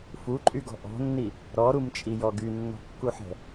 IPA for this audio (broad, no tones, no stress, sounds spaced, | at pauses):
f u ǃʼ y ɡ ɔ̤ ʔ ɔ̤ nː i | ɾ ɔ ɾ u m t͡ʃʼ i j ɔ ɡ y nː ɔ̤ kː u ħ ɛ̤